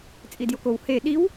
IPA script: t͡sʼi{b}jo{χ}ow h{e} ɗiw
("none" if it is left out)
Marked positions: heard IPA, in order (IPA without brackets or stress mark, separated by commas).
d, k, e